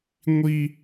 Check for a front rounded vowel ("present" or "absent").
absent